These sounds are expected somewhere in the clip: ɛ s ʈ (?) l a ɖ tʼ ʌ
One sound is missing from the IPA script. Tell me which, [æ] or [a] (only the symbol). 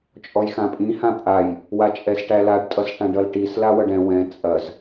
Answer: æ